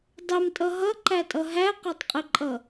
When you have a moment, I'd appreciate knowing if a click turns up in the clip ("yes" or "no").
yes